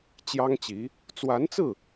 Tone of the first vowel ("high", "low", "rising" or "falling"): high